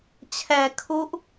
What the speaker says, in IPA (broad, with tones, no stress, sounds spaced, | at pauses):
t͡ɕʰ ɛː˧ kʰ u˦˥ ʔ